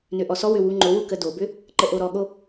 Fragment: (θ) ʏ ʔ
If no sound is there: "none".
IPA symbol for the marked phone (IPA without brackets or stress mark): n